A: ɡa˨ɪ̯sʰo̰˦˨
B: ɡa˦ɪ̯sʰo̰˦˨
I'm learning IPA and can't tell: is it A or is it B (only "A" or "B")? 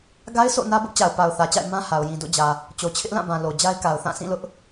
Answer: B